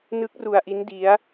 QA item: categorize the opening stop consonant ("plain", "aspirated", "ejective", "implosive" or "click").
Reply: plain